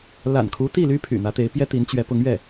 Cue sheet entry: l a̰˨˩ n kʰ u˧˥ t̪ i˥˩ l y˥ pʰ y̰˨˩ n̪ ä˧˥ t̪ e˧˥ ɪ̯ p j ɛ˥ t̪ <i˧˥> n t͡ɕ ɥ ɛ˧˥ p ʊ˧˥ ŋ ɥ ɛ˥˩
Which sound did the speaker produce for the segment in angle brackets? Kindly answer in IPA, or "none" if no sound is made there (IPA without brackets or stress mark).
i˧˥